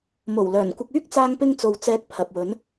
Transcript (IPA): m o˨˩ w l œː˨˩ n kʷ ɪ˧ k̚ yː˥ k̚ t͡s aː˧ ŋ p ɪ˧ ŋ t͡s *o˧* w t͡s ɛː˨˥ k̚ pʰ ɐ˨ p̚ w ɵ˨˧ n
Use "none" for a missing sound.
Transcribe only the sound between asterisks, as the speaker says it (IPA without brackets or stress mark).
o˨